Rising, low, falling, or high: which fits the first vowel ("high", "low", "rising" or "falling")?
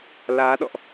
rising